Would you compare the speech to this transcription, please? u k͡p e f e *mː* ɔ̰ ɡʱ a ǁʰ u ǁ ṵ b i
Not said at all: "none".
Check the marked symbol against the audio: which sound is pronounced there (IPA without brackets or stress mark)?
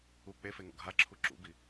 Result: ŋ